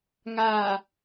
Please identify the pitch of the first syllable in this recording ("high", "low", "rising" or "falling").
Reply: low